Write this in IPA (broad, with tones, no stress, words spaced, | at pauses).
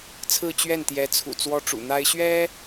t͡sʰɹ̩˥˧t͡ɕɥɛ˥˩nt̪jɛ˧˥t͡sʰṵ˨˩ t͡swɔ˥ʈ͡ʂṵ˨˩n̪a˥ɪ̯ ɕɥɛ˥